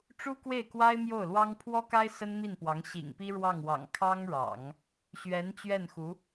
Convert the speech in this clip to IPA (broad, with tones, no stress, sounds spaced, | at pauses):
ʈ͡ʂ u˥ k w e˥˩ ɪ̯ k w a˥ ɪ̯ m j o˥˩ ʊ̯ l w ɑ˥ ŋ pʰ w ɔ˥ k a˥ ɪ̯ s ə˥ n m i˥˩ n p w ɑ˧˥ ŋ ɕ ḭ˨˩ ŋ p i˥ ɻ w ɑ˥˩ ŋ w ɑ̰˨˩ ŋ kʰ ɑ˥ ŋ ɻ ɑ̰˨˩˦ ŋ | ɕ ɥ ɛ˧˥ n t͡ɕ ɥ ɛ˥˩ n x u˧˥